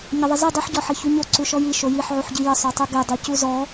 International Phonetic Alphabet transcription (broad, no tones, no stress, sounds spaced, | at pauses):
ɲ ə ðˤ ɪ z i dˤ i ħ ɟ ɔ ħ e ç u ɲ o ǀ u ʃ ɔ j i ʃ o j i ħ ʕ u ħ ɟ i j ə sˤ o tˤ u ɡ e dˤ i c u z ɔ